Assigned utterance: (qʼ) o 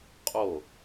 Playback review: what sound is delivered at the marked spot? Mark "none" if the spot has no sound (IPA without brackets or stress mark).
qʼ